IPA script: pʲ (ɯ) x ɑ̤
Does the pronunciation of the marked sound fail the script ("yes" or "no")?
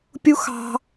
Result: yes